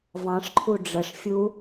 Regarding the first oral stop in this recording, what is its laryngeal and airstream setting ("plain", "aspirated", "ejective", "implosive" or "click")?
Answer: click